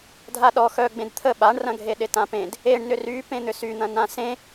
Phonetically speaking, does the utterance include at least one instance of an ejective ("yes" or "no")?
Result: no